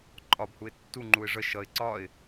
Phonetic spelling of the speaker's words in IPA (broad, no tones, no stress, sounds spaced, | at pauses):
ǃʼ ɒ b h u ɪ̯ tː u ŋ͡ǃ u ɪ̯ ʐ ə ʃ ʌ ɪ̯ ǀ ɒ ɪ̯